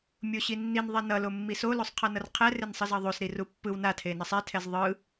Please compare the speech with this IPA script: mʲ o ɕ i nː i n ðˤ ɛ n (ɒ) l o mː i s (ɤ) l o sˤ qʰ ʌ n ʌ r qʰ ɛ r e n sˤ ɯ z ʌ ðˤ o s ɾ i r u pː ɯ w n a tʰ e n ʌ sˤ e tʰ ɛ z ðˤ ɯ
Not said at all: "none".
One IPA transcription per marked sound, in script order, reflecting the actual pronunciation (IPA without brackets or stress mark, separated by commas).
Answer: ʌ, o